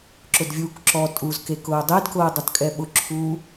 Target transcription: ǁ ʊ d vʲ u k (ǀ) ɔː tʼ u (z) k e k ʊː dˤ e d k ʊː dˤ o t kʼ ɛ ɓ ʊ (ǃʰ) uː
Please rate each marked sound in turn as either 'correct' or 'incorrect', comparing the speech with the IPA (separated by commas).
incorrect, correct, incorrect